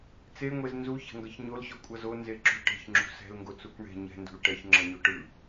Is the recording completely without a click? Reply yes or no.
no